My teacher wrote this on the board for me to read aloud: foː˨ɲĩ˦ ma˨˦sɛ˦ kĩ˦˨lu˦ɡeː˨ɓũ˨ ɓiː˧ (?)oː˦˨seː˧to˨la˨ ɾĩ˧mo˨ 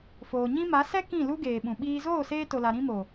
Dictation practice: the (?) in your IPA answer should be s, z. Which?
z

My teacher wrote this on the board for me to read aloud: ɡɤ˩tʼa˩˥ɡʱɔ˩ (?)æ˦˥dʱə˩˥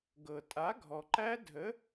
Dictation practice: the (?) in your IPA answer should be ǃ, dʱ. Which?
ǃ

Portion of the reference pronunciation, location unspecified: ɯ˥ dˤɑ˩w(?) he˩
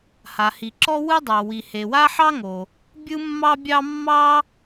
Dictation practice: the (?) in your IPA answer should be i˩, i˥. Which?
i˩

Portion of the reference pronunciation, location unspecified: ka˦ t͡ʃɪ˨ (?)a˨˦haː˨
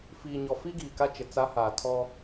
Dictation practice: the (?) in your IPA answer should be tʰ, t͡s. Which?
t͡s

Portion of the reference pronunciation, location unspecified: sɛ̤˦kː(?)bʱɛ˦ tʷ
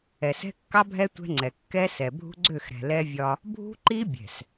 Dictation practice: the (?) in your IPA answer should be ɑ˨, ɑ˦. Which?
ɑ˦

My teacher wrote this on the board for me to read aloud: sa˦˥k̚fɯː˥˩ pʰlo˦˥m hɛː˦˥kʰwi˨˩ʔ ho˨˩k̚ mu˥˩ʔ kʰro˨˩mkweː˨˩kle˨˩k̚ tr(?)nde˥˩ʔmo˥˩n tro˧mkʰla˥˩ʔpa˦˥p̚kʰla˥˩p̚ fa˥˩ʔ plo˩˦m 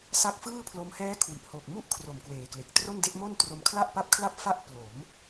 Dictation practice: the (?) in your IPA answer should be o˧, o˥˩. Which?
o˥˩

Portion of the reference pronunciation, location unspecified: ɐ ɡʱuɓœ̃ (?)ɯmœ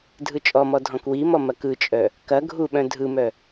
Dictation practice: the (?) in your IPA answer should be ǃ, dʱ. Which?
dʱ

